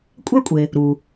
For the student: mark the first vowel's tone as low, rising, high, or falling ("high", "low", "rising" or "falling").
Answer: high